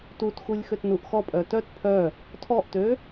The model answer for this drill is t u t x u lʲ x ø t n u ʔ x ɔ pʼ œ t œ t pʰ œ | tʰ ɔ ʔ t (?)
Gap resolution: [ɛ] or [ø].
ø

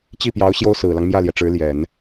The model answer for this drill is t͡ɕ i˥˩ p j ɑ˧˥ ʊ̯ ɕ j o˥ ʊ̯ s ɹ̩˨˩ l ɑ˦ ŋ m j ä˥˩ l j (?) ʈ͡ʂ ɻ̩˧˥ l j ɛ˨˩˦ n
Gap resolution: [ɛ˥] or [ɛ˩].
ɛ˩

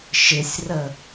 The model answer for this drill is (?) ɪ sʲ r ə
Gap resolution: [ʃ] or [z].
ʃ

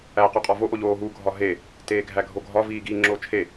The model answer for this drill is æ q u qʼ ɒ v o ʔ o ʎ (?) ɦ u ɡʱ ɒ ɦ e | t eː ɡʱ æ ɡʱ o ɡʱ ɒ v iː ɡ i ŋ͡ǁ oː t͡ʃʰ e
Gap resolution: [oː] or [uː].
oː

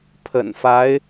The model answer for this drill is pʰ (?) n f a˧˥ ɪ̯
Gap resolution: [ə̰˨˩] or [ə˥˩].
ə̰˨˩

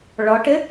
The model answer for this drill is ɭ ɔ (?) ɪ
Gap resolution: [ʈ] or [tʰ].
ʈ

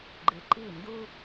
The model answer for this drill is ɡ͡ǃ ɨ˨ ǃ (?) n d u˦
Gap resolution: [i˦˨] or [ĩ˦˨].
i˦˨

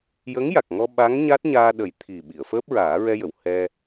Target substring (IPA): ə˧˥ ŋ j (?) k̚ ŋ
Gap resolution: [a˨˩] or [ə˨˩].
a˨˩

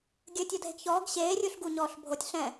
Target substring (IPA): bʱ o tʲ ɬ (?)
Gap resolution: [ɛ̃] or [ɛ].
ɛ̃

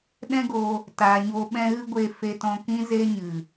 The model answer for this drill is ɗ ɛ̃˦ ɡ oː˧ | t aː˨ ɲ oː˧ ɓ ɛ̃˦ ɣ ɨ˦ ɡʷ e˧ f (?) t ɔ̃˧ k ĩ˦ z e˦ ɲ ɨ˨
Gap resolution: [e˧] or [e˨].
e˧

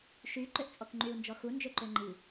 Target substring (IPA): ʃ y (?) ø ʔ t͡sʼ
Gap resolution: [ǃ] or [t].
ǃ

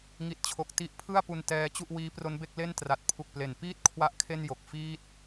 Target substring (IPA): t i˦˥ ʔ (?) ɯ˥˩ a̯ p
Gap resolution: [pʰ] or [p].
pʰ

